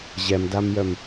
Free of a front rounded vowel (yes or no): no